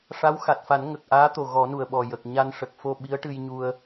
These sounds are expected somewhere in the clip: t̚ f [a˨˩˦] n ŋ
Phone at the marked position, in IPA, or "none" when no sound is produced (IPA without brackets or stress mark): a˨˩˦